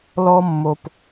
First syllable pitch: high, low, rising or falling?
high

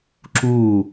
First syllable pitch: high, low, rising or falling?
falling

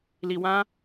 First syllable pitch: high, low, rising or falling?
low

